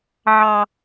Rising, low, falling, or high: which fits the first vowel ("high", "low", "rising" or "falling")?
low